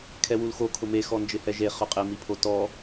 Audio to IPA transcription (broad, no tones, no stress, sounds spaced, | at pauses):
kʰ ɛ w u l x o kʰ ʊ m e x ɔ n d͡ʒ ɪ h ɛ ʒ e χ ʊ qʼ ɪ m i pʰ o t ɔ